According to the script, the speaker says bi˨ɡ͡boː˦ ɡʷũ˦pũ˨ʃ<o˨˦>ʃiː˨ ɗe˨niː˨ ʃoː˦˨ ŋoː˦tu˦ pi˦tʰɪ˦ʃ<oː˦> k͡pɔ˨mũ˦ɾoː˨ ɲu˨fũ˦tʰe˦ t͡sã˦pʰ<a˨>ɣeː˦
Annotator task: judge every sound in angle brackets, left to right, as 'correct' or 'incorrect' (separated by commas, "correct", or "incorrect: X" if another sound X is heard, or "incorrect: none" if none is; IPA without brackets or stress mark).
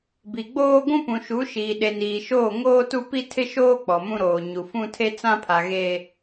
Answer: incorrect: u˨˦, correct, correct